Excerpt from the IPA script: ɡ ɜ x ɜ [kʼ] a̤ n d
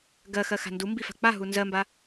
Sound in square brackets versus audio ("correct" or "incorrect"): incorrect